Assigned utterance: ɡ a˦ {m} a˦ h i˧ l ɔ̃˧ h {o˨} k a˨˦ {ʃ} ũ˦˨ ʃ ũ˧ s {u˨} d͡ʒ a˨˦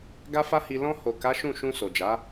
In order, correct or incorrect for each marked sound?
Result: incorrect, correct, correct, incorrect

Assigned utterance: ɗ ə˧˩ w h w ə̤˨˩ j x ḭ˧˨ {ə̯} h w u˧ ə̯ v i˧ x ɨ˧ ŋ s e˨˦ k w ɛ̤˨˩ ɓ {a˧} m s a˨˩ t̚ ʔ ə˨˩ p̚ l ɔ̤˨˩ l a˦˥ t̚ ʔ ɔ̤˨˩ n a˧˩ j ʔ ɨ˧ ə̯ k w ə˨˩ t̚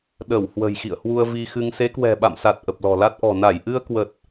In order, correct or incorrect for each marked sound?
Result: correct, incorrect

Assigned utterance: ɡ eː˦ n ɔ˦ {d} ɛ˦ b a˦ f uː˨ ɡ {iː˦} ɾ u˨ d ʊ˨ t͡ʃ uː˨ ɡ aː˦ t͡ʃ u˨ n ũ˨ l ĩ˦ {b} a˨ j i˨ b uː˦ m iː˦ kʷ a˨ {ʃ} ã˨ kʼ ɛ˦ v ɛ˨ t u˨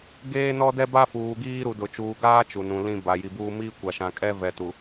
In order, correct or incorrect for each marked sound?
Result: correct, correct, correct, correct

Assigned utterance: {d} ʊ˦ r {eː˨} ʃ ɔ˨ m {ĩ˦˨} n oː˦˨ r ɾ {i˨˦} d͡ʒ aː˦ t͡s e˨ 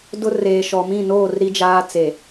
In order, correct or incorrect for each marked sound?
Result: correct, correct, correct, incorrect

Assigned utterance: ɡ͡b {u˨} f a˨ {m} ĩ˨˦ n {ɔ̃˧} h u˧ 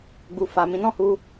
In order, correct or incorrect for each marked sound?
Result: correct, correct, incorrect

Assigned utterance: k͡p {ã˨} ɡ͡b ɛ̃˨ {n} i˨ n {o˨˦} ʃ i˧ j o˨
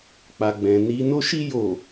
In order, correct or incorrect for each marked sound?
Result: incorrect, correct, incorrect

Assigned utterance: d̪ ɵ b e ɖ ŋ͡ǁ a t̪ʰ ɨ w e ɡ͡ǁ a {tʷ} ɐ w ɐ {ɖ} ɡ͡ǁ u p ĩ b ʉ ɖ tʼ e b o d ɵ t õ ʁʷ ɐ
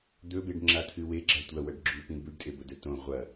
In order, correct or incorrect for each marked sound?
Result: correct, correct

